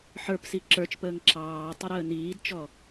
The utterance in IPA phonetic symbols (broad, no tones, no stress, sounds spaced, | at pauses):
ħ ə˞ p s i ǁ ə˞ t͡ʃ p əː ŋ ǁ ɑː tˤ ə ɾ əː n iː d t͡ʃ ɔ